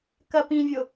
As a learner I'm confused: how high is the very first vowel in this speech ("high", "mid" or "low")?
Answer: low